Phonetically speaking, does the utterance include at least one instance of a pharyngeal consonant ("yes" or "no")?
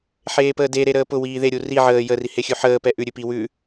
yes